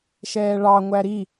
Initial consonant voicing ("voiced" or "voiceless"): voiceless